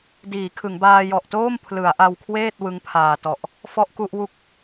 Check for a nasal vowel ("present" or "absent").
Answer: absent